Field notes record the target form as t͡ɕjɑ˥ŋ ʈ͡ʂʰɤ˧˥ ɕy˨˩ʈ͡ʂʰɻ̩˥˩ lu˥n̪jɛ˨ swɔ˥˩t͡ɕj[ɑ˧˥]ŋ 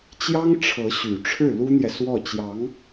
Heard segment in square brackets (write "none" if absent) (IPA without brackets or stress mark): ɑ˧˥